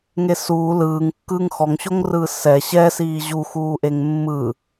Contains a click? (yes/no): no